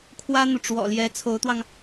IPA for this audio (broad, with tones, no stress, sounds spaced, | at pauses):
kʰ w ä˥ n̪ u˨ ʈ͡ʂ w ɔ̰˨˩ l j ɛ˧˥ t͡sʰ o˧˥ ʊ̯ t̪ w ɑ˧ ŋ